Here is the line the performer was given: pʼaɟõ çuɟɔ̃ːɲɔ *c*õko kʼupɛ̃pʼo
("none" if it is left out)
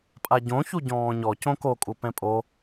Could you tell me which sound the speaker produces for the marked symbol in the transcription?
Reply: c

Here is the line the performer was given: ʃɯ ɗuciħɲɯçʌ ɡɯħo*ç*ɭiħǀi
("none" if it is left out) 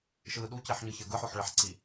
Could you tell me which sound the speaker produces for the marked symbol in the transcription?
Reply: ħ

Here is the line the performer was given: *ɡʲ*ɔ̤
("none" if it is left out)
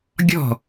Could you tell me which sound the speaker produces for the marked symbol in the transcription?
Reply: ɡʲ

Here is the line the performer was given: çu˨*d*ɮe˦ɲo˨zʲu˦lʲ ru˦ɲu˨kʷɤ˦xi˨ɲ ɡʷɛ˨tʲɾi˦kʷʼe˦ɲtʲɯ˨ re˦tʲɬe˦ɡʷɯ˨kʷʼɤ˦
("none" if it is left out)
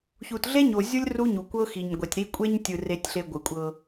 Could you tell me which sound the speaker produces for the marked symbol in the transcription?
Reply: t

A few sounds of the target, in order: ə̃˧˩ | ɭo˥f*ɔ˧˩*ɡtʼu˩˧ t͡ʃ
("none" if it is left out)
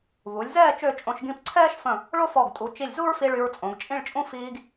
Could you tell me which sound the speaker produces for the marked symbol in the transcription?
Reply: ɔ˧˩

